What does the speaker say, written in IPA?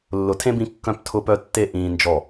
lː ʊ˨ tʰ ẽ˦ b ĩ˧ kː œ̃˧ p tʰ ʊ˧ p œ˧ tː e˧ ʔ ĩː˧ n d͡ʒ ɔ˦˨

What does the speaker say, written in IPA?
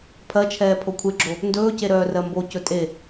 pʰ ɜ t͡ʃʰ ɛː pʰ o kʷʰ e ɡ͡ǁ o | n d ɵː c e ɾ œː r ɜ m b o c ɵ tʼ e

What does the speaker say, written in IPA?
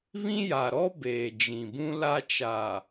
β ĩ˦ j a˨ ɾ ɔ˦ b eː˨ d͡ʒ ĩ˨ b ũ˦ l a˦ t͡ʃ aː˨

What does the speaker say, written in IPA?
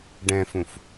ɖ ɛ̃ f ũ f

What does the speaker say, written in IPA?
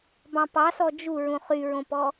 b ɑ̃ p ɑ s ɔ d͡ʒ u ɹ ũ χ y ɹ õ p ɔ

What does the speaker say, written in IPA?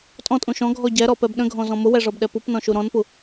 tʼ ɔ̃ tʼ ũ ʃ ɔ̃ ɡʱ ɔ ɟ ɛ ɾ ɔ p ɛ b ɗ ə̃ ɡʱ ɔ̃ z ɔ̃ m ʊ w ɛ ʐ ɔ b ɗ ɛ p u p n ɔ̃ ʃ u ɾ ɔ̃ n p u

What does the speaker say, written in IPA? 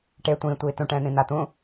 ʈ e tʷ ĩː tʷ iː t ũ ʈ ɛ̃ː n̪ ĩ n̪ a t̪ ũ

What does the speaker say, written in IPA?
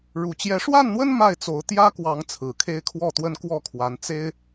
ɻ u˨˩ t͡ɕ j ɛ˨˦ ʂ w a˥˨ n n̪ w ə˦ n m a˥˨ ɪ̯ t͡s o˨˦ ʊ̯ t̪ j ä˦ k w ɑ˨˦ ŋ t͡sʰ ɹ̩˨˩ kʰ e˦ ɪ̯ kʰ w ɔ˥˨ t̪ w ə˦ n k w ɔ˥˨ kʰ w a˨˦ n t͡s e˦ ɪ̯

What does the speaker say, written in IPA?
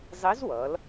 zˤ i˧˥ z w ʌ˩˧ l

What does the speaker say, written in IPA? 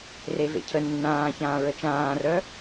r e v ḛ cʰ ə nː ãː ç ãː ɹ ə t͡ʃ ãː r œ

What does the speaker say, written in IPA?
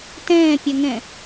t ɛ̃ː pʲ œ ŋ ɛ̃

